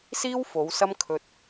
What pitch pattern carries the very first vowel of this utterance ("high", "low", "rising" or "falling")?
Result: high